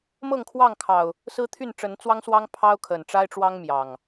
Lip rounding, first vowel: unrounded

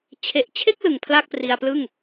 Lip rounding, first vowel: unrounded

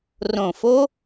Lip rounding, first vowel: rounded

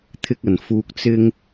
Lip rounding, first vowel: unrounded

